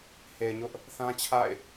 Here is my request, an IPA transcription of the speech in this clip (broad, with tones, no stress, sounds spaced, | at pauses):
h e˨ ɪ̯ ɲ ʊ˦ ʔ | θ ã˦ t͡ɕʰ a̰˦˨ ɪ̯